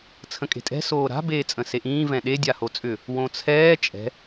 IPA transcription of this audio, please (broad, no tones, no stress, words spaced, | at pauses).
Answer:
t͡sʰə̃kʼe̤tʼɛ̤ soːɾa̤ beːt͡sʼə̃seʔĩː vɛ̃ɗe dʲahot͡sʼʏ | wõt͡sʰɛː t͡ʃʼɛ̤